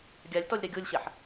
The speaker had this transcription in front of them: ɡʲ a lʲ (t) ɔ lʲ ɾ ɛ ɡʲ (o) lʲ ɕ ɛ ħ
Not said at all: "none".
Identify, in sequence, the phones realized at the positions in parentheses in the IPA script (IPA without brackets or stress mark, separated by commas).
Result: t, o